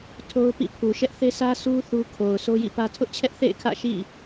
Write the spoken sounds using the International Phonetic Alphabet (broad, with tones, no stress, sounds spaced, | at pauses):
tʰ o˦ ʊ̯ p ḭ˦˨ pʰ u˨ ʃ ɛ˦ ʔ θ e˦ sʰ ä˦ sʰ u˦ θ u˦ kʰ o˨ ʊ̯ sʰ o˦ j ḭ˦˨ p ä˦ tʰ ʊ˦ ʔ t͡ɕʰ ɛ˦ ʔ θ ḛ˦˨ ɪ̯ kʰ ä̰˦˨ ʃ ḭ˦˨